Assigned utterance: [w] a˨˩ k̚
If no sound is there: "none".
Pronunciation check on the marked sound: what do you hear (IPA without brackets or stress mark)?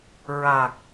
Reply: ɹ